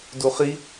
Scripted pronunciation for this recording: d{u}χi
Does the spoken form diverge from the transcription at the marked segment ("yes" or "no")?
no